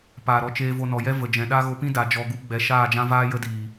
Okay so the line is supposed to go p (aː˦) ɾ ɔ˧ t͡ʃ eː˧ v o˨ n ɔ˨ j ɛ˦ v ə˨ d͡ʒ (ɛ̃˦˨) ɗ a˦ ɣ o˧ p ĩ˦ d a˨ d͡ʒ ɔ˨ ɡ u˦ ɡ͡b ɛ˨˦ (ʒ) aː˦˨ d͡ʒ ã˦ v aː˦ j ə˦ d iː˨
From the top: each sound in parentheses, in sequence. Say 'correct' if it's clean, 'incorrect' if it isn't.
incorrect: aː˨, incorrect: ɛ̃˨, incorrect: ʃ

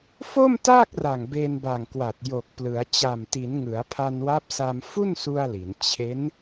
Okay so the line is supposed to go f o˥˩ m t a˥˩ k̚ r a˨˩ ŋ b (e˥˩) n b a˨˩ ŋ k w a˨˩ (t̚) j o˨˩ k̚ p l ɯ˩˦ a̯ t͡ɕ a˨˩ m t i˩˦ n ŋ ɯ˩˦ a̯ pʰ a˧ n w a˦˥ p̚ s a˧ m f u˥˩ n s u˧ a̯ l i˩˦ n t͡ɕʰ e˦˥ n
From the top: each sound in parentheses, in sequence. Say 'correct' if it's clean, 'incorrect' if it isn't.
incorrect: e˧, correct

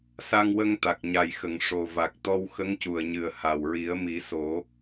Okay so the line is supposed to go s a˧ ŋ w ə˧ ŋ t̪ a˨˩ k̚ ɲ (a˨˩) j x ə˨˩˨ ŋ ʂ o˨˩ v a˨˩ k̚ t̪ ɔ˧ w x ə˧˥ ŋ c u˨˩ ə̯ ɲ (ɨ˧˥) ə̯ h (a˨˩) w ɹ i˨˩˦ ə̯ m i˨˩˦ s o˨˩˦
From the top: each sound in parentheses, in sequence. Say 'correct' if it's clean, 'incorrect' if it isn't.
correct, incorrect: ɨ˨˩, correct

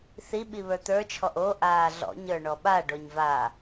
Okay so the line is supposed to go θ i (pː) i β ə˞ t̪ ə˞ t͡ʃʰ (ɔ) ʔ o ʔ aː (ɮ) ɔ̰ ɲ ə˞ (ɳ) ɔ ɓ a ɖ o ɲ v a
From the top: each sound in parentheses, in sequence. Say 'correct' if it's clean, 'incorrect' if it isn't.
incorrect: ɓ, correct, correct, correct

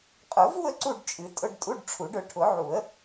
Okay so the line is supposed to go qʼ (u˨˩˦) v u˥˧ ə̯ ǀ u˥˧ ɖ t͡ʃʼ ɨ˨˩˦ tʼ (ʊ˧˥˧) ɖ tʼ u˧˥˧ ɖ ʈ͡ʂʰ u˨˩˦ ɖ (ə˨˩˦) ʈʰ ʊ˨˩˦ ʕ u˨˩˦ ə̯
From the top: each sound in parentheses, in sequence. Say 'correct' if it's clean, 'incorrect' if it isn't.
incorrect: ʊ˨˩˦, correct, incorrect: ʊ˨˩˦

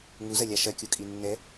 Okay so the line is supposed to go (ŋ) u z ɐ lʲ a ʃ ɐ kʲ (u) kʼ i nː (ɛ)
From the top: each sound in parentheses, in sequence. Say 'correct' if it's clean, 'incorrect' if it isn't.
correct, correct, correct

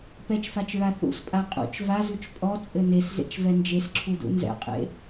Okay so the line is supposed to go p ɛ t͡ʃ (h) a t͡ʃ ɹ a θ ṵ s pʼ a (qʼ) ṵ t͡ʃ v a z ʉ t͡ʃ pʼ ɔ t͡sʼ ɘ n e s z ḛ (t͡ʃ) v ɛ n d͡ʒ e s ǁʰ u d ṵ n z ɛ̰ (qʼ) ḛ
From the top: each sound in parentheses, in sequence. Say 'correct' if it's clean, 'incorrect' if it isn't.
incorrect: f, correct, correct, correct

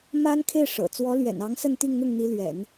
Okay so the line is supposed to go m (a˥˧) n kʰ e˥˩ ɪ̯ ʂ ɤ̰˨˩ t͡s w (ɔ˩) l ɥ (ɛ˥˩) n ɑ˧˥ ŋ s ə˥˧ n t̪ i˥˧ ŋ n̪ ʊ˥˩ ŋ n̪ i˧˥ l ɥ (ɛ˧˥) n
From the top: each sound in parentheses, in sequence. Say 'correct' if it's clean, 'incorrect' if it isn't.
incorrect: a˥, incorrect: ɔ˧˥, incorrect: ɛ̰˨˩, incorrect: ɛ̰˨˩˦

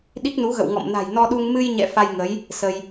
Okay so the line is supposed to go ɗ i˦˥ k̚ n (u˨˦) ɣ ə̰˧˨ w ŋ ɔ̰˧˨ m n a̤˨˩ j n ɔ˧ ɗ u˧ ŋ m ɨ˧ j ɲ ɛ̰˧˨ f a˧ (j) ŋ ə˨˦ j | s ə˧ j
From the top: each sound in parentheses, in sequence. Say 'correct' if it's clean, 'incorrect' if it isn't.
correct, correct

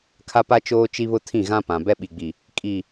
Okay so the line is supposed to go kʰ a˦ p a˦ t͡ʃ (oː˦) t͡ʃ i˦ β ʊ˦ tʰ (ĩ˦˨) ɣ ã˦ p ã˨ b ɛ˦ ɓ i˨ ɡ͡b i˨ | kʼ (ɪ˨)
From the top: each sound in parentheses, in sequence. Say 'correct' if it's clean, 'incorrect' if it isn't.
correct, correct, incorrect: i˨

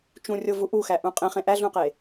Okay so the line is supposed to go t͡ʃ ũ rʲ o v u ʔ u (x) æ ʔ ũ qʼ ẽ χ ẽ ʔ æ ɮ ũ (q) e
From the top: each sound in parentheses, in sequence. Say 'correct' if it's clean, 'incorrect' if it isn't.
correct, correct

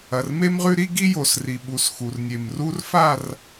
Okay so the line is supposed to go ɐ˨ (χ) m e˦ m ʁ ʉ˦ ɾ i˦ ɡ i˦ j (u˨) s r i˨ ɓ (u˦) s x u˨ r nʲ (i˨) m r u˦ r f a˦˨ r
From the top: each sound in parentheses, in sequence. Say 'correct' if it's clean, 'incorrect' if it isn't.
incorrect: r, incorrect: o˨, incorrect: u˨, incorrect: e˨

